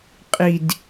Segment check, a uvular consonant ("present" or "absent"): present